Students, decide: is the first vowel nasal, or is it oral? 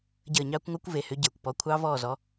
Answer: oral